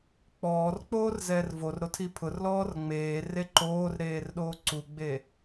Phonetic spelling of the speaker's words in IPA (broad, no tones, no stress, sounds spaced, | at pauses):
k͡p ɔː r k͡p oː r z ɛː r v o r ɾ o tʰ i pʰ ʊ r l ɔː r ŋ͡m eː r e ǃ oː r ɾ eː r ɗ oː ǀ u ɡ͡b e